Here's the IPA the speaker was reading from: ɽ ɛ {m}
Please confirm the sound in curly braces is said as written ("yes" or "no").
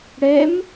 yes